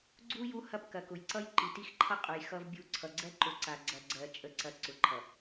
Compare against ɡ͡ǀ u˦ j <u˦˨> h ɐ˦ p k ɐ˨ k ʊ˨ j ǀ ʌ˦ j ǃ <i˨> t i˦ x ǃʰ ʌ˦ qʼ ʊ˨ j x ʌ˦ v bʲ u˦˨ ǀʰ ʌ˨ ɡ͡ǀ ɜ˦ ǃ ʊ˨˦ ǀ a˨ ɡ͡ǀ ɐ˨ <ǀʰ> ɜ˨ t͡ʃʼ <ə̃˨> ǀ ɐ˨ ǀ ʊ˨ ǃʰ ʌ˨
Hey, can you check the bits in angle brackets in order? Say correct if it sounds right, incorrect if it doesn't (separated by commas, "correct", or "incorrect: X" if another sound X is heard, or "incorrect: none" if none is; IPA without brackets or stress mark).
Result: incorrect: u˦, correct, incorrect: ɡ͡ǀ, incorrect: ə˨